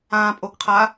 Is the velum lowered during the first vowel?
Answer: yes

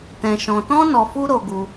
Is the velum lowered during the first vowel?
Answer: yes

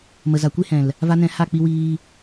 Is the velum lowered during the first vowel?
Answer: no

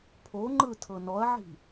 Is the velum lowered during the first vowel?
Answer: no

